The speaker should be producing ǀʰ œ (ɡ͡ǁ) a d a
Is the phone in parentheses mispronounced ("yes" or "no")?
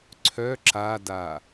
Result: yes